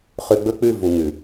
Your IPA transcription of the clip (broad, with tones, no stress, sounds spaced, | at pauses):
χ ʉ˧ ɡ͡b ɵ˦ k͡p ʉ˦˨ v u˨ ŋ ʉ˨